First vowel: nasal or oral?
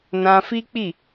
nasal